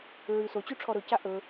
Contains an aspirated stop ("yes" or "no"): yes